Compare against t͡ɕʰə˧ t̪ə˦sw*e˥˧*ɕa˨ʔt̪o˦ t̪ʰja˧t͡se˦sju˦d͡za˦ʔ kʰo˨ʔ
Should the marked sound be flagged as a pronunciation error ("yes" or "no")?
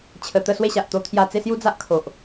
no